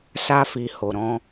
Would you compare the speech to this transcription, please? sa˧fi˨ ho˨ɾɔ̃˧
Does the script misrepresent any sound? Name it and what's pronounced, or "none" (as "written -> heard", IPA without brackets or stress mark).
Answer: none